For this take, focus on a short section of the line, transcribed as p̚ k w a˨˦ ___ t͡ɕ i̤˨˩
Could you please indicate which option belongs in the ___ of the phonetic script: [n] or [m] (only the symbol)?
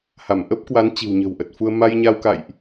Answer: n